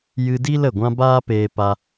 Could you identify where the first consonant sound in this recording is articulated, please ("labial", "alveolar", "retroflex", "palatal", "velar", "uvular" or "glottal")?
palatal